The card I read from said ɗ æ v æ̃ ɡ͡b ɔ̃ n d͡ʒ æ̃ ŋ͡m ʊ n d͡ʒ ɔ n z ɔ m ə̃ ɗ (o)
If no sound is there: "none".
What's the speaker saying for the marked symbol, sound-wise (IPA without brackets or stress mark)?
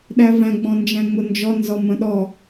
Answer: ɔ